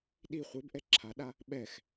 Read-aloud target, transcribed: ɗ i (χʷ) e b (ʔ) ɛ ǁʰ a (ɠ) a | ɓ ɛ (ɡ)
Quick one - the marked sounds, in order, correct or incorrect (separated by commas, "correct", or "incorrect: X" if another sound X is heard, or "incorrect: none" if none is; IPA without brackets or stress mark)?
correct, correct, incorrect: ɗ, incorrect: x